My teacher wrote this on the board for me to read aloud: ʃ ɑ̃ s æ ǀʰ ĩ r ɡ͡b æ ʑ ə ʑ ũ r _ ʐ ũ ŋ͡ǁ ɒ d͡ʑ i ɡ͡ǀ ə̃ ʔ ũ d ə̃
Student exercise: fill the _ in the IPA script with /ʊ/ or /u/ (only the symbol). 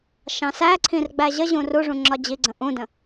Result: u